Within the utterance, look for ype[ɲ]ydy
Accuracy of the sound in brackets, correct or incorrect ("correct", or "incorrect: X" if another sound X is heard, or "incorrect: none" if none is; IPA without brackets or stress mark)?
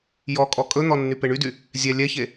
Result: incorrect: ɳ